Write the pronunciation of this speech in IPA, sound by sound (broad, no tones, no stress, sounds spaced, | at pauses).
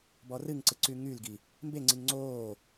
b ɔ r ɨ ŋ ǀ ɨ ǀ y ŋ y l ɡ i | m b e ŋ͡ǀ i ŋ ŋ͡ǀ oː